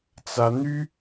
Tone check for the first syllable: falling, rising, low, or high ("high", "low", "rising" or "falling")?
high